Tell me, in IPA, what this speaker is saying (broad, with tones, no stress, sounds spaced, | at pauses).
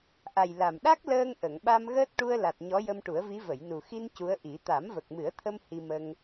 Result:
ʔ a˨˩ j l a˨˩ m ɗ a˦˥ k̚ l əː˧ ŋ ʔ ə˨˩˨ ŋ ɓ a˧ m ɣ əː˦˥ t̚ ʈ u˧ ə̯ l a˨˩ t̚ ɲ ɔ˧˥ j ə˧ m ʈ u˨˩˦ ə̯ v i˧˥ v ə˨˩˨ j n u˨˩ x i˧ n c u˧˥ ə̯ ʔ i˨˩˦ t̪ a˨˩˦ m v ə˨˩ k̚ m ɨ˨˩˦ ə̯ t̪ʰ ə˧ m h i˧ m ə˧ ŋ